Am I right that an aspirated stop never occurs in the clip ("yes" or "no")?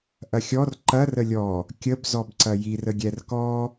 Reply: yes